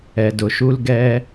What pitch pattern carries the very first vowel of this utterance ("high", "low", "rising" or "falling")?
low